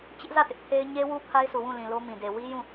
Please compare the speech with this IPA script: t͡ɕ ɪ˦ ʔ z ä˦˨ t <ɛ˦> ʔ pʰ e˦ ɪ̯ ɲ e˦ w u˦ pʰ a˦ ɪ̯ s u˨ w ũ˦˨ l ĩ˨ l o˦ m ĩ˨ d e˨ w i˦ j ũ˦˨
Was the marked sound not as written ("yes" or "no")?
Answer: yes